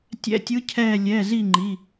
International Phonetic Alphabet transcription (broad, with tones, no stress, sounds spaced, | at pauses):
tʲ ɛ̰˧˥˧ tʲ ɯ˧˥ cʰ ɛː˦˨ lʲ ɛ˩˧˩ z i˦˨ ŋ͡ǃ i˩˧˩